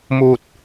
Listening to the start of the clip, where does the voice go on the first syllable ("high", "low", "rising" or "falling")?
low